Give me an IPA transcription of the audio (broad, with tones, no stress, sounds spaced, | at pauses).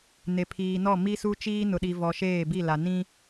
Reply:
n e˨ pʰ iː˨ n ɔ˦˨ m i˦ s u˦ t͡ʃ iː˦ n ʊ˨ ɗ i˨ v ɔ˨ ʃ eː˦˨ b i˦˨ l a˨ n ĩ˦